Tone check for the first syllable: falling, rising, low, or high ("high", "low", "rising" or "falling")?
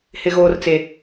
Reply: high